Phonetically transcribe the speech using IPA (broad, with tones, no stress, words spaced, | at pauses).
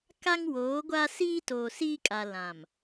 ka˦ŋwoː˨˦ɡʷa˦ siː˦toː˨siː˦kʼa˨ lã˨m